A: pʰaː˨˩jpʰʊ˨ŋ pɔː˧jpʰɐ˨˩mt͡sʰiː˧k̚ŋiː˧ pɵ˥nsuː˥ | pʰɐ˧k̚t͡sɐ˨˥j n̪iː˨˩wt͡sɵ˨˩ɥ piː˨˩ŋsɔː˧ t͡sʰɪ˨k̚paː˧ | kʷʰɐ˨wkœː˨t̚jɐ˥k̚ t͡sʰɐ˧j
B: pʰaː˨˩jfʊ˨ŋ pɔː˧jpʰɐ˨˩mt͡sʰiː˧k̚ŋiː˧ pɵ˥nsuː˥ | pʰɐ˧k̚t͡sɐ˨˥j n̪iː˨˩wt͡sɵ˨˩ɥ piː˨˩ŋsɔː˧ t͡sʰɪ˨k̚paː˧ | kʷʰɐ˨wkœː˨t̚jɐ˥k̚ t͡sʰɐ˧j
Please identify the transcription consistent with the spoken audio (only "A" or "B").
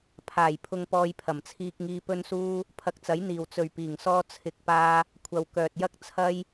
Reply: A